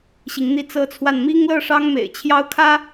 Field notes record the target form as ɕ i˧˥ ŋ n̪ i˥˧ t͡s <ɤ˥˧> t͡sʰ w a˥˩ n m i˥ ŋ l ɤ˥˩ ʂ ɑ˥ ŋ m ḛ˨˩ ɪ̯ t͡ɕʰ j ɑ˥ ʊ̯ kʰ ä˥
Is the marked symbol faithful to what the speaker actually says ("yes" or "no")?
yes